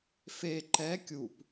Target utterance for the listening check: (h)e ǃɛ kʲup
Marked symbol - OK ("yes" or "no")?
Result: no